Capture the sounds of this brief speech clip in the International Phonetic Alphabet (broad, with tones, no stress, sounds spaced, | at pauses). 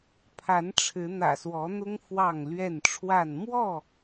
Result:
pʰ a˨˦ n ʈ͡ʂʰ ɻ̩˨˦ n̪ ä̰˨˩ s w ɔ˨˦ n̪ ʊ˦ ŋ f w ɑ˥˨ ŋ l ɥ ɛ˥˨ n ʈ͡ʂʰ w a˥˨ n m w ɔ˥˨